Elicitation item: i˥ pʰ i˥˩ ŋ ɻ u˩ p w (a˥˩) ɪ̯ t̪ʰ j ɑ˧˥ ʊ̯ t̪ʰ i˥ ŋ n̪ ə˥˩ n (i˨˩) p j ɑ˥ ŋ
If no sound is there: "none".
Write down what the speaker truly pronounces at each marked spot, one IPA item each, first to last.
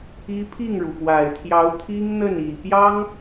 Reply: a˨˩, i˨˩

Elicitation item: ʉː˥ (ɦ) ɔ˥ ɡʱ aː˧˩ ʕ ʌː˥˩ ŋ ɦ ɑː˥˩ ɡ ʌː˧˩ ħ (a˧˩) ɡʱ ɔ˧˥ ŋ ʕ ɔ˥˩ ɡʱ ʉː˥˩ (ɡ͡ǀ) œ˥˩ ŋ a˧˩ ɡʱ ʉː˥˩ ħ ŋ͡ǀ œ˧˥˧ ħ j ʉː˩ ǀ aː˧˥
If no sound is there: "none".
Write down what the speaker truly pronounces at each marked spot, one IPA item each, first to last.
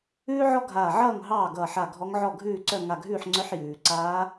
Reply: ʕ, a˧˩, ǀ

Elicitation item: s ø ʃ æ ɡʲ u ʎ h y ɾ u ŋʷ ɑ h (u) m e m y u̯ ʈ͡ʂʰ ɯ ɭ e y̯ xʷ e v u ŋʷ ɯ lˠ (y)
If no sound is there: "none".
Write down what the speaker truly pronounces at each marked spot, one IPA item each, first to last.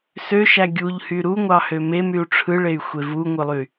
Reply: ø, y

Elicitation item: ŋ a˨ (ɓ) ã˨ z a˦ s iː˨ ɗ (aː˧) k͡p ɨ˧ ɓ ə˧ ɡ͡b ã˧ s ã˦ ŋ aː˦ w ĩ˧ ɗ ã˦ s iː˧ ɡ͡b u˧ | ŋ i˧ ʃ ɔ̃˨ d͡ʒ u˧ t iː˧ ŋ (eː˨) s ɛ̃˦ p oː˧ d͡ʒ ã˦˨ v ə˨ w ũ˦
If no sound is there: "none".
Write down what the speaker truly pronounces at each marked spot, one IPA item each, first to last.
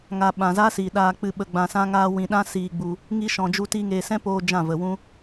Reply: ɓ, aː˧, eː˨

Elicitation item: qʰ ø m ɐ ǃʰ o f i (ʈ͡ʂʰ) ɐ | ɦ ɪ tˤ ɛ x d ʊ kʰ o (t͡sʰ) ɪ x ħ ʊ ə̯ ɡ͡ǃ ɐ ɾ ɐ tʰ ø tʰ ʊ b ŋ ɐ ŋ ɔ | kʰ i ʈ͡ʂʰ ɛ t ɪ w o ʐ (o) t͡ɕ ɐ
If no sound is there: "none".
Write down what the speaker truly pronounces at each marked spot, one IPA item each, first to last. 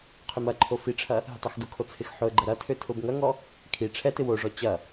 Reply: ʈ͡ʂʰ, t͡sʰ, ɔ

